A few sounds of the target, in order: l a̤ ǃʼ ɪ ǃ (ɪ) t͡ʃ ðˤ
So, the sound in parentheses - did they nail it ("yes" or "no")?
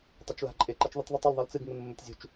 no